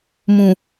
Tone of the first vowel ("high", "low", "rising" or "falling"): low